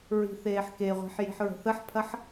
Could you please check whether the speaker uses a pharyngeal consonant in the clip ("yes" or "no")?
yes